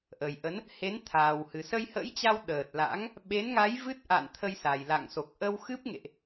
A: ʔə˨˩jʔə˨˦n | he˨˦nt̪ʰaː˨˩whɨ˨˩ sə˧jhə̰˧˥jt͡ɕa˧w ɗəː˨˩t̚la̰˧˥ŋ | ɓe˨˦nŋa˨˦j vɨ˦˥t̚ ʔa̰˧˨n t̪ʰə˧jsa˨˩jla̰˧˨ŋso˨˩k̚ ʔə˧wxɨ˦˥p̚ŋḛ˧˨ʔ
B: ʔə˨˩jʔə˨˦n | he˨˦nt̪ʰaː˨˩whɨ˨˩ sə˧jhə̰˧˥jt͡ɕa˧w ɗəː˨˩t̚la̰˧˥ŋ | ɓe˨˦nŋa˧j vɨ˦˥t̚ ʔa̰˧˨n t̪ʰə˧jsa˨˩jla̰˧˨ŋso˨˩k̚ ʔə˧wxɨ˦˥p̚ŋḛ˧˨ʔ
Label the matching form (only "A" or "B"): A